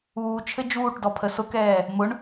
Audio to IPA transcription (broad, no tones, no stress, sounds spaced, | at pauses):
uː t͡ʃʰ ɘ d͡ʒ uː ʈ d ɔ pʰ ə s ʊ k ɛː | m ʊ ɳ